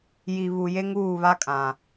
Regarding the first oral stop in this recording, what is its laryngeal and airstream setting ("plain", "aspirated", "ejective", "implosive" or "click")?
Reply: ejective